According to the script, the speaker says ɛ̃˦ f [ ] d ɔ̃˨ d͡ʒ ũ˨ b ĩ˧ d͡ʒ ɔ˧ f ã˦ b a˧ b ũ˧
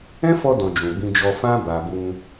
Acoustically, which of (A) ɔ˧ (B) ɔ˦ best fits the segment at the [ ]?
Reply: A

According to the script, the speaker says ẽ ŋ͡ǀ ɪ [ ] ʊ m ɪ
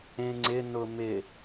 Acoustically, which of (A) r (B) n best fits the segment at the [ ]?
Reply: B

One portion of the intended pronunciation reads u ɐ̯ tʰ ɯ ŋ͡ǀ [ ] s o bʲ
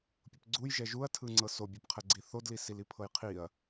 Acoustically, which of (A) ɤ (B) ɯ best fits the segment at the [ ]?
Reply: A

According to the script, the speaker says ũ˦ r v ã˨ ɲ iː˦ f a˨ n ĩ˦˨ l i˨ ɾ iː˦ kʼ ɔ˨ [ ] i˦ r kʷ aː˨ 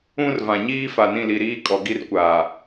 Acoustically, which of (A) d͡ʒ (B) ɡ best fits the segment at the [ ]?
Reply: B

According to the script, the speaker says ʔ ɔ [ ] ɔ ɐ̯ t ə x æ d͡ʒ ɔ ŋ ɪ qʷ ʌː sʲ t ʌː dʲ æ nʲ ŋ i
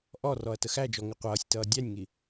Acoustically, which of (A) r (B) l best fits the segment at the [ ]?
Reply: A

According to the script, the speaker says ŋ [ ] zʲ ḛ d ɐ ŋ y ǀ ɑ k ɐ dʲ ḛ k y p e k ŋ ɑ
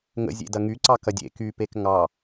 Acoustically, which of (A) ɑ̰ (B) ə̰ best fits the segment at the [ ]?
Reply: B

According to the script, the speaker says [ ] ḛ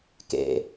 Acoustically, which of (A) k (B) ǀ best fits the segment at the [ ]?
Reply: A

